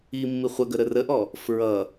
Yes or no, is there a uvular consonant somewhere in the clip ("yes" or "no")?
yes